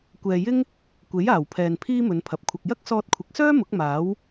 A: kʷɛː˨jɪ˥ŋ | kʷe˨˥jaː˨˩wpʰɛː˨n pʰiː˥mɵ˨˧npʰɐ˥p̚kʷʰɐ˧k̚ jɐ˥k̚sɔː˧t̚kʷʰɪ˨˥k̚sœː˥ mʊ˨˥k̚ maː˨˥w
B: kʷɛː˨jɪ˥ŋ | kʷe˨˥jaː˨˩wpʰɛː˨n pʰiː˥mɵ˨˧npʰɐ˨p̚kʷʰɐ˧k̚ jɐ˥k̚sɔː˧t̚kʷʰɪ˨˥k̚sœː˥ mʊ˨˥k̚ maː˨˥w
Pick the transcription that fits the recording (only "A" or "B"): B